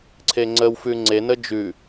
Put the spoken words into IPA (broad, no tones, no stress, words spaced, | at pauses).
ǀʰeŋ͡ǀəwfʉ ŋ͡ǀenə d͡ʒʉ